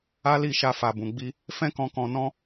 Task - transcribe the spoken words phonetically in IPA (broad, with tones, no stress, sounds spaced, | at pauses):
a˦ l i˦˨ ʃ a˧ f a˨ b ũ˨ ɡ͡b i˧ | f ɛ̃˦ k ɔ̃˧ k ɔ̃˧ n ɔ̃˦